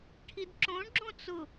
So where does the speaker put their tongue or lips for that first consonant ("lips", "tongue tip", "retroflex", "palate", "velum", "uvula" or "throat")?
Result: retroflex